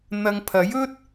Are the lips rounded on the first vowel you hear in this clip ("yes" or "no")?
no